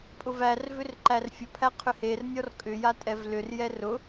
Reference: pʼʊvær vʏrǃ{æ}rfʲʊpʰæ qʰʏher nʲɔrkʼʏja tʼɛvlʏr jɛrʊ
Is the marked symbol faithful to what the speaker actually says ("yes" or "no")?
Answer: yes